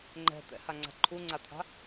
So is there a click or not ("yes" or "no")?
yes